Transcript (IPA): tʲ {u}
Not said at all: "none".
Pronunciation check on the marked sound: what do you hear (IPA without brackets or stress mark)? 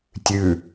ʉ